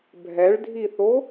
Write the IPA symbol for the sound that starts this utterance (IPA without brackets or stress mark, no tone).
bʱ